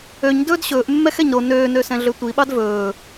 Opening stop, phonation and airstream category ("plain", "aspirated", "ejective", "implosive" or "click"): plain